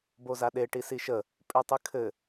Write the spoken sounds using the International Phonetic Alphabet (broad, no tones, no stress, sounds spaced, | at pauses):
b o z a ɗ e ʈ i s i ʃ ə | pʼ ʉ tˤ ɨ kʰ ɘ